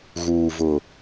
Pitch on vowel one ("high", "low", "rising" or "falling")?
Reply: low